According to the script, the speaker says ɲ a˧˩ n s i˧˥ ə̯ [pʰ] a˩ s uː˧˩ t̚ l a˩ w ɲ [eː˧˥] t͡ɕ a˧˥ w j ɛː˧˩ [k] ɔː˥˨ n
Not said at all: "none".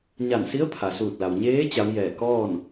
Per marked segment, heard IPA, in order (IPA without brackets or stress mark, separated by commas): pʰ, eː˧˥, k